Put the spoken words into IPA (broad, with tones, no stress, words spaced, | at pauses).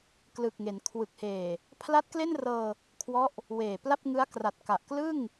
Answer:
klɯ˨˩k̚ŋe˩˦n kʰwɯ˨˩k̚heː˨˩ | pʰla˦˥t̚ kle˥˩nrɤː˧ | kʰwɔ˦˥ʔ | weː˨˩pla˥˩p̚ŋɯ˦˥a̯ kra˨˩t̚ka˨˩ʔklɯ˥˩ŋ